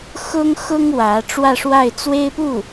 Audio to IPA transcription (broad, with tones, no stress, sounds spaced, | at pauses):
x ʊ˥ ŋ x ʊ˥ ŋ w ä˧˥ ʈ͡ʂ w ä˥˧ ʂ w a˥˩ ɪ̯ t͡s w e˥ ɪ̯ p u˥˩